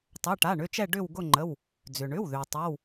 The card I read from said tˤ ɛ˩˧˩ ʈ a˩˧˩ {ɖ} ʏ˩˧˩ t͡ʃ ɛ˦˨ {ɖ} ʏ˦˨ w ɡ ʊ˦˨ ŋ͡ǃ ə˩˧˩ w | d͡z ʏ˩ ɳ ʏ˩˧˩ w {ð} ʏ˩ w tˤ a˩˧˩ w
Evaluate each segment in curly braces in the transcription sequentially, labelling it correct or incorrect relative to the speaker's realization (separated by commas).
incorrect, correct, correct